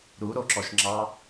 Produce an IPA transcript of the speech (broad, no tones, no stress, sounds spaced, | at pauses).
ɾ u ɾ o ǁ ɔ ʃ ŋ͡ǁ ɑ